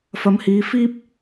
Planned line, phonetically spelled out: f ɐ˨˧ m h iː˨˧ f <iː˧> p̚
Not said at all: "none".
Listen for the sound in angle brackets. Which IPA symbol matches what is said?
iː˧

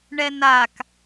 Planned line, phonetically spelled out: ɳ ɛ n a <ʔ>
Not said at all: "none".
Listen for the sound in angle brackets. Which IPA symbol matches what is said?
k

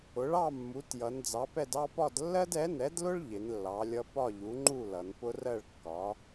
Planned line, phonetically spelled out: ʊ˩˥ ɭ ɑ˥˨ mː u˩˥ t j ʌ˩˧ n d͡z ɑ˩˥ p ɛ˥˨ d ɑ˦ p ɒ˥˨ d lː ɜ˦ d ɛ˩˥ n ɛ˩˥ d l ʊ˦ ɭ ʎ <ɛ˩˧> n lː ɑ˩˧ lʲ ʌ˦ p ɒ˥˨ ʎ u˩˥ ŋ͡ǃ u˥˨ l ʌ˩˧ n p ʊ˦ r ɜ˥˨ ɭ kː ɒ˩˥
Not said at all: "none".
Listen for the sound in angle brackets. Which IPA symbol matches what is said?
ɪ˩˧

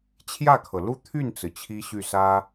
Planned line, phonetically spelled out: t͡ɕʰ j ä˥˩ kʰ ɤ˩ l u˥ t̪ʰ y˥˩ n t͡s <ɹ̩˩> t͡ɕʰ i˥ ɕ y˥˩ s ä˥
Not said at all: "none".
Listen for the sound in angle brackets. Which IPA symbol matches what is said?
ɹ̩˩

